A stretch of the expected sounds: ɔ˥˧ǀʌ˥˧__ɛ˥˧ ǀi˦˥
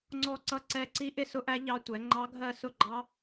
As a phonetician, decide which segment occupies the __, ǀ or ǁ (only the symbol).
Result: ǀ